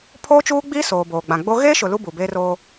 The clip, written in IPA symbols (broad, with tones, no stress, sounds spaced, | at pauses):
pʰ oː˦ t͡ʃ uː˦ ɡ͡b iː˦ s oː˨ b oː˨ ɡ͡b ã˨ ɡ͡b o˦ ɣ eː˦ ʃ ʊ˨ l u˦ b u˨ b eː˦ r oː˦